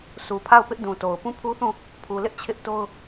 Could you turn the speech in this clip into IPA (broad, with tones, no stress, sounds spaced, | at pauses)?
sʰ u˨ pʰ a˦˨ ʊ̯ p ɪ˦ ʔ d ũ˨ t o˨ ʊ̯ p ũ˦˨ pʰ u˦ θ ũ˦˨ | pʰ u˨ l ɪ˦ ʔ t͡ɕʰ ɪ˦ ʔ t o˦ ʊ̯